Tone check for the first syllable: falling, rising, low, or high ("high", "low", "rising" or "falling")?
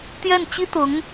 falling